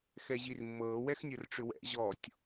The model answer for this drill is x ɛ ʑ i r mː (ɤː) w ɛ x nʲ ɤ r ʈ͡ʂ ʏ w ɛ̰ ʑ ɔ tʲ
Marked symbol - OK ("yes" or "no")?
yes